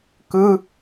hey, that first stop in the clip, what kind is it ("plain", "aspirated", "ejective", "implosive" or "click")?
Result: plain